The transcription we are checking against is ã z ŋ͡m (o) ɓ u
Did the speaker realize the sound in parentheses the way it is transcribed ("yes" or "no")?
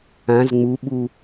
no